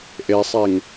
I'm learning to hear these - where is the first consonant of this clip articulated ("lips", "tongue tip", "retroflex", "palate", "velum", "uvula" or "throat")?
throat